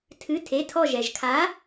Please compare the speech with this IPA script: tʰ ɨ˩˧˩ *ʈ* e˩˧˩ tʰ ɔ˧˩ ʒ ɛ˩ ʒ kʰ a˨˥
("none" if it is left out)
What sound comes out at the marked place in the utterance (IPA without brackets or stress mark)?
tʰ